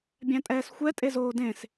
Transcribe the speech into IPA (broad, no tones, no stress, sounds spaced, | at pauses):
bʲ æ̃ tʼ ɛː s xʷ ɛ tʼ e z oː d ẽ s